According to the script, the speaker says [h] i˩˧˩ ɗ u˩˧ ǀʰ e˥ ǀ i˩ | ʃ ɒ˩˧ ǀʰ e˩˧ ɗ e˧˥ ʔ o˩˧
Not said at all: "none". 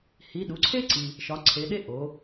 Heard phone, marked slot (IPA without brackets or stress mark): h